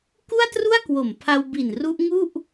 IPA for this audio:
k u˥˩ a̯ t r u˥˩ a̯ k w o˨˩ m pʰ a˧ w b i˨˩ n r u˦˥ ʔ ŋ u˥˩ ʔ

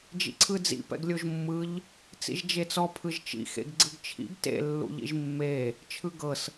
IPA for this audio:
d͡ʒ ḭ ǀʰ ɯ d͡z ḭ p ɛ̰ ɡ lʲ o ʒ mː ɯ ʎ | t͡s ḭ ʒ d͡ʒ e t͡s ɔ pʰ ɯ ʒ t͡ʃ ḭ x ḛ ɡ ɡ͡ǀ ɯ ɡ t͡ʃʰ ḭ ɡ t ḛ lː ṵ ʎ ḭ ʒ mː e | t͡ʃʰ ɯ ɡ ɤ s

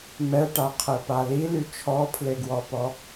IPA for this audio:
m ɛ ʈ a qʰ ɛ p a l i l y t͡ʃʰ ɔ pʰ l e ɡ w ɔ p ɔ

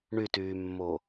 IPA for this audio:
ɳ y t yː mː o

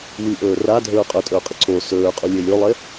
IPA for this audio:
w i ʔ ɵː r a dʱ ɵː qʼ ɵ tʼ ɵː qʼ ɨ ǀ o s ɵː qʼ u lʲ e lʲ o lˠ e

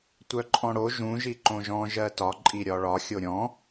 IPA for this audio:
tʷ œ ǃʼ ɔ̃ ɽ o ʒ ũ ʒ i ǃ õ ʒ ɔ̃ ʒ ɜ t ɒ ǃʼ i ɾʲ ɒ ɭ ɒ xʲ o ɾʲ ɔ̃

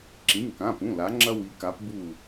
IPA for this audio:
ǁ ĩ˩˧˩ ŋ k ã˩˧˩ p ũ˩˧˩ l a˩˧ ŋ͡ǁ ɐ˧ w i˩˧ k a˩˧ p b u˧˩

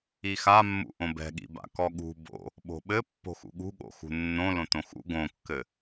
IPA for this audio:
i x a mː ṵ ʔ õ b ɛ̤ ɠ ḭ b a̰ k ɔ ɠ ṳ b o̰ | ɓ o̤ ɓ ɘ pː o̤ x ṵ ɠ ṳ ɠ o̰ x ṳ nː õ l õ t õ x ṵ ɡ õ kː ɘ

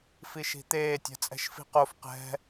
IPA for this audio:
f i ʃ i̤ t̪ eː tʲ ɛ̤ t͡sʼ ɛ̤ ʃ f i̤ q o f q ɛ̤

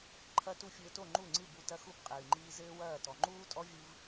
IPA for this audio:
ǃʰ ɐ˦ t u˦ fʲ ɘː˧ t o˦˨ ŋ͡ǃ u˦˨ ŋ͡ǀ ɨ˦˨ b u˧ t ɐ˦ x u˦ b qʼ ɨː˨ ŋ͡ǃ iː˦ z ɘː˦ w ɐː˦˨ t ɔ˨ ŋ͡ǃ uː˦ tʼ ɔ˦ vʲ ɨ˧ v

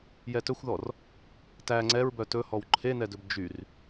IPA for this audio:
j ɛ t ɵ xʷ ð ɔ r | t æ ŋ͡ǀ ɛ ɹ b œ t ɵ h ɔ w ǃʰ e n ɛ d ɵ b d͡ʒ y r

